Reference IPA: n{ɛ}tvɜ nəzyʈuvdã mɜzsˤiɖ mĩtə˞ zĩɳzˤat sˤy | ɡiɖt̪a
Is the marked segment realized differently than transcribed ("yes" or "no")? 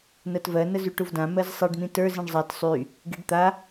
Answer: yes